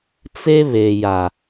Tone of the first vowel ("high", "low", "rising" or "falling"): high